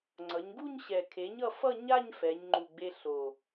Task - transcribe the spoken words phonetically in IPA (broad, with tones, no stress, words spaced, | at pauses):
ŋ͡ǀʌ˩˧ɲɡu˥˧ɲɕɛ˨˩ kʰe˩˥ɲʌ˧fʌ˥˧ ɲa˥˧ɲ fɛ˩˧ɲŋ͡ǃu˨˩ɡ͡be˧ ɬo˨˩